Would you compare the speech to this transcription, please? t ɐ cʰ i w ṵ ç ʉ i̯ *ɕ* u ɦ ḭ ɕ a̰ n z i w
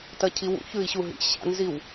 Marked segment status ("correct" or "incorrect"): correct